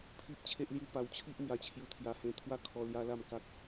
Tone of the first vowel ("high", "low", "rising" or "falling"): high